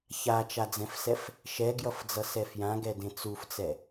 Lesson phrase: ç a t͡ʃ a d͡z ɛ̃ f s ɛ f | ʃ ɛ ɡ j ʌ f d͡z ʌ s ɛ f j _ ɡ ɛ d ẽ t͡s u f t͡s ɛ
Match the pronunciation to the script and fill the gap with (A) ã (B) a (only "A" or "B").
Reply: A